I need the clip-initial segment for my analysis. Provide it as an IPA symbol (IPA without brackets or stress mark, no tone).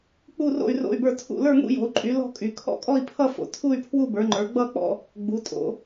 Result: k͡p